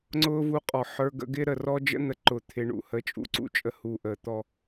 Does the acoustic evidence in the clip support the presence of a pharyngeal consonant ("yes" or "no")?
yes